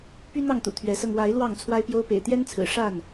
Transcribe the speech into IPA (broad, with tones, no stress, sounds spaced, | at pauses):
p y˦ n̪ ɑ˥˨ ŋ t̪ ṵ˨˩ t̪ʰ ɥ ɛ˨˦ s ɤ˧ ŋ w a˨˦ ɪ̯ l w ɑ˥˨ ŋ t͡sʰ w a˦ ɪ̯ p j o˦ ʊ̯ p ḛ˨˩ ɪ̯ t̪ j ɛ˦ n t͡sʰ ɹ̩˨˩ ʂ a˥˨ n